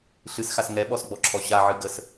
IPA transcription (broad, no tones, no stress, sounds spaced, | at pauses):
ɬ ɨ s x a s ŋ ɛ ɓ ɔ s ɡ͡b ɔ ǁʰ ɔ ɕ a ʕ ɨ ɡ ə s